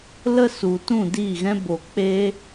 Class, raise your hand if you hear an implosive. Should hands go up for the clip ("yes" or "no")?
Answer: no